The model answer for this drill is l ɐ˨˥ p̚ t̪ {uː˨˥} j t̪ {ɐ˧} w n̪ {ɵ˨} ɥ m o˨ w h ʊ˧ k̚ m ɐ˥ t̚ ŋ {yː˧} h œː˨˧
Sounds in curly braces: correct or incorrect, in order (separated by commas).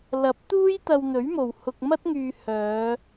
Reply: incorrect, correct, incorrect, correct